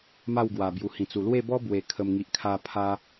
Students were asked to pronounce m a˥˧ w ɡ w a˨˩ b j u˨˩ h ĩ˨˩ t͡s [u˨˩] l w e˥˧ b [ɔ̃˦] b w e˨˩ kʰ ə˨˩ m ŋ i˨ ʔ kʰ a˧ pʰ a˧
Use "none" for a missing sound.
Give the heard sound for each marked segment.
u˨˩, ɔ˦

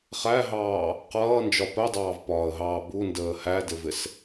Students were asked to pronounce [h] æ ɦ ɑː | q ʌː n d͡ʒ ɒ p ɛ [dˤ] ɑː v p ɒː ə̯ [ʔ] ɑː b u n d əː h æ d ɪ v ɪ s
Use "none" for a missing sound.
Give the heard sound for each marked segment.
χ, dˤ, ɦ

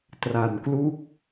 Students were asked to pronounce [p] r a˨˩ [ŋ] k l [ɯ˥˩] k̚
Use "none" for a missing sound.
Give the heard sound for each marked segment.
t, n, u˥˩

